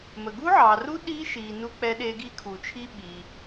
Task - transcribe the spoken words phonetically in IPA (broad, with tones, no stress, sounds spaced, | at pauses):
m ə˨ ɡ u˦˥ ʕ ɑ˨ r u˦˥ ɗ i˦˥ ʃ i˨ n u˦˥ k͡p ɛ˦˥ ɗ e˦˥ ɡ i˦˥ kʰ u˨ t͡ʃʰ i˦˥ ɓ i˨